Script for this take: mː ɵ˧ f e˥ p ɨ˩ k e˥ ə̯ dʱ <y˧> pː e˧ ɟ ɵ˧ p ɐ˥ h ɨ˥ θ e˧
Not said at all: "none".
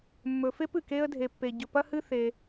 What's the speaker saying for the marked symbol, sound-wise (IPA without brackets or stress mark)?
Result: e˧